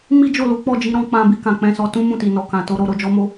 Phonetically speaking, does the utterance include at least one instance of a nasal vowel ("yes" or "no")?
yes